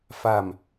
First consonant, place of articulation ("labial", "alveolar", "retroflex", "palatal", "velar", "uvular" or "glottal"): labial